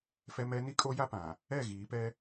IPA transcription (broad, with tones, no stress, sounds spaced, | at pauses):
f ɛ˦ m ɛ˦ n i˦ kʼ o˦ j a˦ p ã˨ | ɛ˦˨ ɣ iː˨˦ p ɛ˦